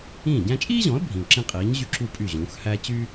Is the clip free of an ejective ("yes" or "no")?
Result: no